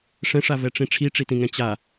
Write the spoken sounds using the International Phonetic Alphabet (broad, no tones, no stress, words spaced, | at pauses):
ʂɛ̃ʂavɛʈ͡ʂĩ ʈ͡ʂʰiʈ͡ʂitĩŋɛ̃ t͡ɕa